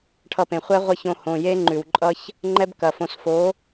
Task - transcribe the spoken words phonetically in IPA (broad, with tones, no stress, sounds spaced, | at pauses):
ʈʰ ʌ˧ p ẽ˨ χʷ ɛ˦ ʁʷ ɐ˦ ç õ˧ h õ˨ j e˦ ŋ͡ǃ ʉ˨ w ǃʼ ʌ˦ ç | ŋ͡ǃ ɛ˦ b k ɐ˨ f õ˧ s f o˨˦